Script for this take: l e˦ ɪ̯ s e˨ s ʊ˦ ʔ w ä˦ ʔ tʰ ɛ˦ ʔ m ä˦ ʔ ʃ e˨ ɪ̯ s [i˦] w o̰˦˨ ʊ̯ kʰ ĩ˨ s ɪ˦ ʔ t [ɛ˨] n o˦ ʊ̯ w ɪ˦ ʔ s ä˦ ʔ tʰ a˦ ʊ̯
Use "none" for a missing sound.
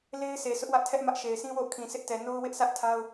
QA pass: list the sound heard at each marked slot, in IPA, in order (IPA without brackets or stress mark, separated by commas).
ĩ˦, ɛ˨